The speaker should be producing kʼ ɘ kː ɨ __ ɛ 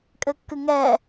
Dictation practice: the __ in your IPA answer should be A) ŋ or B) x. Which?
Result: A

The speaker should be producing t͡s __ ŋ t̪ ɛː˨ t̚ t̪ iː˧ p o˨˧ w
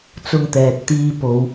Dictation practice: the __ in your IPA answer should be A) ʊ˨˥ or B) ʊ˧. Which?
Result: B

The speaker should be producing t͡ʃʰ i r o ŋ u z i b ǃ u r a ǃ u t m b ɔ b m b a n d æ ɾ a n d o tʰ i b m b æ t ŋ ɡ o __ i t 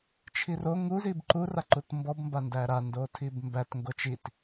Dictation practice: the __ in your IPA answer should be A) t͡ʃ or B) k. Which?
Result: A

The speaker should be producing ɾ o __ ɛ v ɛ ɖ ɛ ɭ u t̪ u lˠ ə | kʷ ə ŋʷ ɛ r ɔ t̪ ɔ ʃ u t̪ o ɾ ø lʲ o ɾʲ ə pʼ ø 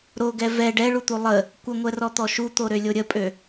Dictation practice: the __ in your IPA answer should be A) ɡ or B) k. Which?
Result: A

